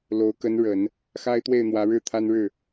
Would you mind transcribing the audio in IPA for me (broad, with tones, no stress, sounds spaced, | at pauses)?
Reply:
l o˧˥ ʊ̯ k ə˧˥ n ɻ ə˨˩˦ n | x a˥ ɪ̯ t̪ w e˥˩ ɪ̯ n̪ w ä˧˥ ɻ ɻ̩˥˩ t̪ʰ a˥ n ɻ ɻ̩˥˩